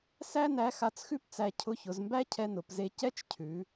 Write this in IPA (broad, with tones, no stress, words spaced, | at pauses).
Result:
sæ˥ næ˧˥xa˧t͡sxʉ˥pt͡sæ˧ cʰʊ˧˥çʊ˩˧zmbæ˥ cʰɛ˧nʊ˩˧p ze˧ cɛ˥t͡ʃcʰʉ˩˧